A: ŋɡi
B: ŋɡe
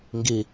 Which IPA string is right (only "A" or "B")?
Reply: A